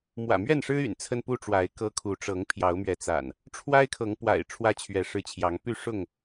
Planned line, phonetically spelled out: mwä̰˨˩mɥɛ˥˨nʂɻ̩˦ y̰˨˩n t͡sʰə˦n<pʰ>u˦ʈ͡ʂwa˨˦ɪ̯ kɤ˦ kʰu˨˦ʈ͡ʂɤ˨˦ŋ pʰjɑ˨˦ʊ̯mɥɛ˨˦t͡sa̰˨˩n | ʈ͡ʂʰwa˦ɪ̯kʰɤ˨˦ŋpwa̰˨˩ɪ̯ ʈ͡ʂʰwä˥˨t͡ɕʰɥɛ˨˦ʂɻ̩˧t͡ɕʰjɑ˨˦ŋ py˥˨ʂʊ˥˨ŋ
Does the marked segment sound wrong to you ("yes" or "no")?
yes